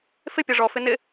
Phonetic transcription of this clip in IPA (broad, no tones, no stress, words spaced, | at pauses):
fɪ pʲɔʐɔ fɪnɪ